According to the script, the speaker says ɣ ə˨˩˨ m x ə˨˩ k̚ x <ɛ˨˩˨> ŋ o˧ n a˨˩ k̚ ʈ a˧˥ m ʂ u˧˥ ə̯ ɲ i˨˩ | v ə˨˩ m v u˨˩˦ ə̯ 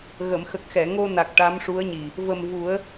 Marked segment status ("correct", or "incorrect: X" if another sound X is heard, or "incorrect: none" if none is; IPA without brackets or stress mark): correct